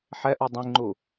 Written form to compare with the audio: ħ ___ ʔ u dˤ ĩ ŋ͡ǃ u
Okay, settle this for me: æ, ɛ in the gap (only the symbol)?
ɛ